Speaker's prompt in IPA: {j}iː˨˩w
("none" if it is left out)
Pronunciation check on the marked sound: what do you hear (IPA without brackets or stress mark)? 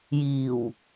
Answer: j